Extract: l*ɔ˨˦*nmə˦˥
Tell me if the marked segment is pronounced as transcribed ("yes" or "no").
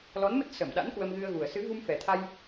yes